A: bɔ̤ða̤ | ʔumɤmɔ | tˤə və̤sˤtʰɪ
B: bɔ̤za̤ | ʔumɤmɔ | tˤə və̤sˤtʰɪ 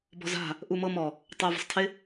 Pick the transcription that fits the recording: B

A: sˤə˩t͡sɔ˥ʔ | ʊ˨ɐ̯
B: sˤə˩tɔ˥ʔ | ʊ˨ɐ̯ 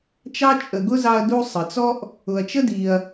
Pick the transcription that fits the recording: A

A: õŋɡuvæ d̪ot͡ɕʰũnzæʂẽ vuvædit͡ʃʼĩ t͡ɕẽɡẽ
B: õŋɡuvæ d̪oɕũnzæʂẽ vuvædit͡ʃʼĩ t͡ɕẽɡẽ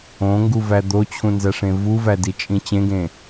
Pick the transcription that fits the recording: A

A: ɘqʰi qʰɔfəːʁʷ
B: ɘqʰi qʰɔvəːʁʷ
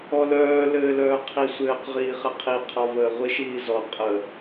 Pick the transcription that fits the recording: B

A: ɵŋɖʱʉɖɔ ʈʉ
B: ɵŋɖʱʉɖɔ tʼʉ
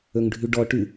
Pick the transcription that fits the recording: A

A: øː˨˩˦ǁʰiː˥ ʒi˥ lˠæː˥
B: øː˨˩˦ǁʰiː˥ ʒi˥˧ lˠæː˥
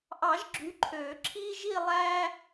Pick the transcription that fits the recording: B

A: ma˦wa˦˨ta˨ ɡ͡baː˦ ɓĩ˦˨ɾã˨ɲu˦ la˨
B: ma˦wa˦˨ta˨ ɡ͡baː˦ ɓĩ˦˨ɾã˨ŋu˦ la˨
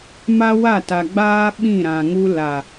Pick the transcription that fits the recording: B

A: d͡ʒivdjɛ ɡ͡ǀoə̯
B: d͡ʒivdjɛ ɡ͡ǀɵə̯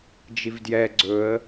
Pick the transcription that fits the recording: B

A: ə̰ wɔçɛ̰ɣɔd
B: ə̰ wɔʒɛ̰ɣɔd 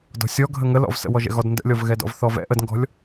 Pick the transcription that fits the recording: B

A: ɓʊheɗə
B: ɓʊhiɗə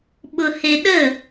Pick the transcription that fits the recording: A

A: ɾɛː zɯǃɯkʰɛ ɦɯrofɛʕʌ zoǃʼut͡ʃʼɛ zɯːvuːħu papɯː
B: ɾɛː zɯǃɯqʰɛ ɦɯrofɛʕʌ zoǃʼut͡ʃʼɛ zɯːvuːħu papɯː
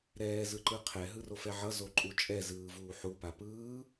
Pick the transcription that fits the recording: B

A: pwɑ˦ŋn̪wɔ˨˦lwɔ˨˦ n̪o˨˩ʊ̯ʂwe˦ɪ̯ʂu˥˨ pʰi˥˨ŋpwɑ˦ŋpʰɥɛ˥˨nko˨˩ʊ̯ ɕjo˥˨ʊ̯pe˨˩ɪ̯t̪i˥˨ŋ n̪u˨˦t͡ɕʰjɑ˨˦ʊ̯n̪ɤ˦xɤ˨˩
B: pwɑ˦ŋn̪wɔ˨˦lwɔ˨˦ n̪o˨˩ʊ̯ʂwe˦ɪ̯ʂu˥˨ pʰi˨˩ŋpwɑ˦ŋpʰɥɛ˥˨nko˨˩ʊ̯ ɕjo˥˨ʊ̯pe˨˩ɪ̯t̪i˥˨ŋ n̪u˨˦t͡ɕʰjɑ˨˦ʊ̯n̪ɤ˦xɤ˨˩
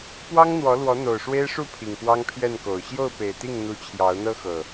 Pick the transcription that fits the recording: B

